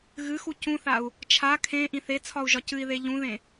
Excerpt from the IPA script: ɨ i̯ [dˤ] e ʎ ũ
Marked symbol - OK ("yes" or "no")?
no